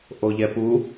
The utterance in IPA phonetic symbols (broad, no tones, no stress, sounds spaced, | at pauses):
ʔ o ʎ ɛ p u